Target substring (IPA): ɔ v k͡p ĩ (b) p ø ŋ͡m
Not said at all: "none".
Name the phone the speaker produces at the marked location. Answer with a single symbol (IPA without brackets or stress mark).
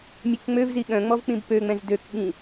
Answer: b